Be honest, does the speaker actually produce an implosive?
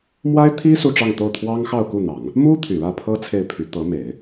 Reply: no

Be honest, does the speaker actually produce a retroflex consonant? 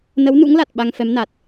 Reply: no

